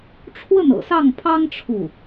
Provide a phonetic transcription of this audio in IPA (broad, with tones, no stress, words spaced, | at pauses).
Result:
ʈ͡ʂʰwə˥˩nɤ̰˨˩sɑ˥˩ŋpʰɑ˥ŋ ʈ͡ʂʰu˥˩